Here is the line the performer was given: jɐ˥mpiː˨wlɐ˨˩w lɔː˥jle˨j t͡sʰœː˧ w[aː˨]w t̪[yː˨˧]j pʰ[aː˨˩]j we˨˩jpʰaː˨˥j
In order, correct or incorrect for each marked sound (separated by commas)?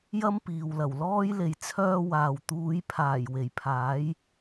correct, incorrect, correct